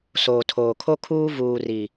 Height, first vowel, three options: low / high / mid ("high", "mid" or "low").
mid